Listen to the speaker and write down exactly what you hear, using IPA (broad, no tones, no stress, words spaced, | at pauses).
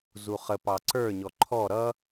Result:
zuχə pɑǀə˞ɲɔ ǃʰɔ ɾʌ